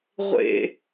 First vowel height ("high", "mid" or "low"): mid